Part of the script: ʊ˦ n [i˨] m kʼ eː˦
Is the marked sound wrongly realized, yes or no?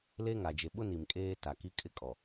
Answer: no